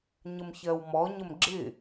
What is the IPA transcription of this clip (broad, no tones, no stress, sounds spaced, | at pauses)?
ɲ ə m ç ɜ w m ɔ ɲ ə m ɡ͡ǁ ɪ